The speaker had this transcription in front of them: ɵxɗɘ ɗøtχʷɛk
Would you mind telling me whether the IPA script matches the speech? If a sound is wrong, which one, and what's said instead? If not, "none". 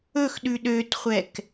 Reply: ɘ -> ʉ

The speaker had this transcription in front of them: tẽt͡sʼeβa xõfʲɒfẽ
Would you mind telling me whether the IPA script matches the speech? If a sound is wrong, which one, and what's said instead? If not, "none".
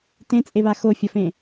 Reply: õ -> o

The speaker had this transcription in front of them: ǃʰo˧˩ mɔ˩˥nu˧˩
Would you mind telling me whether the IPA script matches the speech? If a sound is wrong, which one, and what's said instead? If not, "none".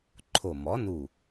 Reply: none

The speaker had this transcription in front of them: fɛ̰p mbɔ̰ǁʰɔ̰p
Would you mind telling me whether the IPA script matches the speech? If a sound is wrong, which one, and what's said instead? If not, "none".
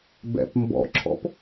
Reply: f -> b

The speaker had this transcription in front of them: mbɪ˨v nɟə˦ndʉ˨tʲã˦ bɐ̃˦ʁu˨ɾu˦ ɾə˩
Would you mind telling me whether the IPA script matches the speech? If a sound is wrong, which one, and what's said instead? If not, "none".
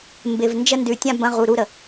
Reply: ɟ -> d͡ʒ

